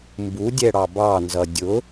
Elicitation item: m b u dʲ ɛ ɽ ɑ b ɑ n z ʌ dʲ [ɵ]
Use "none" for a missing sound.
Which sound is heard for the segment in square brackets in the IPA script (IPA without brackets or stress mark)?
ʊ